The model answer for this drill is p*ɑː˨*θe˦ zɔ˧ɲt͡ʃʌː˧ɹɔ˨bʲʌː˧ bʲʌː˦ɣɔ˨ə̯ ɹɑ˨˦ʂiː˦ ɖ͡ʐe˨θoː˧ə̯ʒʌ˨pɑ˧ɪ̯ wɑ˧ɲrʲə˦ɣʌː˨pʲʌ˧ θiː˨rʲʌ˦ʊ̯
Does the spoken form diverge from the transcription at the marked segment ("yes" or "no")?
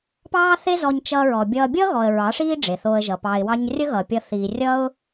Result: yes